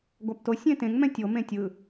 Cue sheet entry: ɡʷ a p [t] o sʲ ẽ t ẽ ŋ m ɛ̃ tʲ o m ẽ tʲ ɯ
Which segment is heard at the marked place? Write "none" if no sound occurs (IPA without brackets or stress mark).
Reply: t